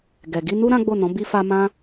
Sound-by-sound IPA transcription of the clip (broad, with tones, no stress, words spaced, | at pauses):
ɡɛ˨ ɡi˧nu˦ ɾã˦ɡ͡bo˦˨nɔ̃˨˦ bi˧fa˧ mã˦